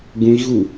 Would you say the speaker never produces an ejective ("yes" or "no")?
yes